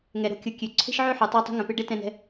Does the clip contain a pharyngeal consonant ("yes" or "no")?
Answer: yes